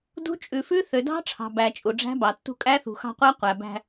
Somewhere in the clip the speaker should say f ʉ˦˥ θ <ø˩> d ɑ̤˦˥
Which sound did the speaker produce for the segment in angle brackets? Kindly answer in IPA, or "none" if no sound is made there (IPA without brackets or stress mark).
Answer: ø˩